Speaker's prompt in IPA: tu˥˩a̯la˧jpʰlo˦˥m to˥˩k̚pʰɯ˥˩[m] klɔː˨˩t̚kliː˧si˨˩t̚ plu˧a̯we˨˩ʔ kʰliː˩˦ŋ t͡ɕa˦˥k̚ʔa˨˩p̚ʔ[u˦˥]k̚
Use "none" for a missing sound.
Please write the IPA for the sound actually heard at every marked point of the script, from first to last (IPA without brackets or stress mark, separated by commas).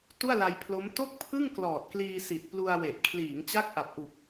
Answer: ŋ, u˨˩